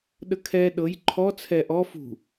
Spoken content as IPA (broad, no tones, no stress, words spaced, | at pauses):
ɗəkʰɛ ɗɤj ǃʰɔ t͡sʰɛ ʔɔ fṳ